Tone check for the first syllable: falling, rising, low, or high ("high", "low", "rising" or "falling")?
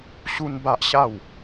high